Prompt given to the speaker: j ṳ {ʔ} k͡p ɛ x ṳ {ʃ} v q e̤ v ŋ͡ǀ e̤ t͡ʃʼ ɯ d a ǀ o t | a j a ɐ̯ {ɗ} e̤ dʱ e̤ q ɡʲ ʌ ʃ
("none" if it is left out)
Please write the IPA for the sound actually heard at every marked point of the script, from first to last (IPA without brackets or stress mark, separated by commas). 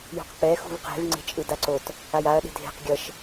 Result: q, none, ɗ